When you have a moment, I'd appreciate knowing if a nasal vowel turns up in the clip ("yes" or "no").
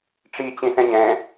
yes